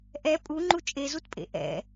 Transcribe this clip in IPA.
ʔ ɛ pʼ u ŋ͡ǃ u t͡ʃʼ e z u t pʼ ḛ ʔ ɛ̰

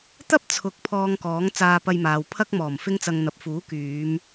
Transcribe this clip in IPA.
t̪ ɐ˥ p̚ t͡sʰ ʊ˨˥ k̚ pʰ ɔː˧ ŋ k ɔː˨˥ ŋ t͡s aː˧ p ɐ˧ j m aː˨ w pʰ ɐ˥ k̚ m ɔː˨˩ m f ɪ˥ ŋ t͡s ɐ˧ ŋ n̪ ɐ˨ p̚ f uː˨˥ k yː˨˧ m

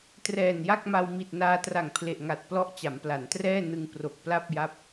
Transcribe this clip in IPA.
t r ɛː˨˩ n j a˥˩ k̚ m a˧ w m i˨˩ t̚ n aː˧ t r a˨˩ ŋ pʰ l e˨˩ ʔ ŋ a˨˩ t̚ p l ɔ˦˥ ʔ t͡ɕ a˩˦ m p l a˩˦ n t r ɛː˥˩ n ɯ˧ ŋ p r o˨˩ k̚ p l a˥˩ p̚ j a˦˥ p̚

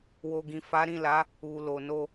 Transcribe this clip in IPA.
w o˨ ɡ ĩ˨ f a˨˦ ɾ ĩ˦˨ l a˨˦ | u˨ l o˨ n o˧

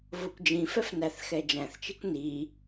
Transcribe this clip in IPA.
v o kʷ d͡ʒ ĩ f ɛ f n æ θ x ɛ d͡ʒ æ̃ θ t͡ʃ i kʷ n i

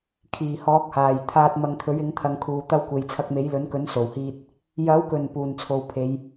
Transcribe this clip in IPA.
kʰ iː˨˩ h ɔː˨˥ k̚ h aː˨˩ j t̪ʰ aː˧ t̚ m ɐ˧ ŋ t̪ʰ ɵ˨˥ ɥ ɪ˨˥ ŋ t̪ʰ ɐ˨˧ ŋ kʰ uː˨ t̪ ɐ˧ w kʷ e˨ j t͡sʰ ɐ˧ k̚ m e˨˥ j l ɵ˨˥ n k ɵ˨˥ n s o˨˩ w h iː˧ t̚ | j ɐ˨˥ w k ɵ˨˩ n p uː˨˩ n t͡sʰ o˨ w pʰ e˨˧ j

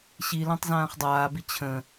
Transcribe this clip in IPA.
ɕ i l ã tˤ z ãː χ dˤ aː b i t͡ɕʰ ə̃

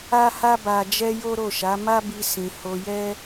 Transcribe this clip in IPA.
a˦ h a˦ b a˧ d͡ʒ ɛ˦ j o˦ ɾ o˦˨ ʃ a˨˦ m a˦ b i˧ s ĩ˧ h o˧ j ɛ˦

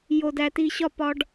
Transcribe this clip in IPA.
j o˨ d æ˨ t iː˨ ɕ ɒ˦˨ p ɒ˦ ɖ

